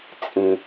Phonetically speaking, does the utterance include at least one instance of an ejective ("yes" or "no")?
yes